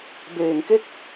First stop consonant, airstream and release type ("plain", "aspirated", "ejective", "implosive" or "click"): plain